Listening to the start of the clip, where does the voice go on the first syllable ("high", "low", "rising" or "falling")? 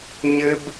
high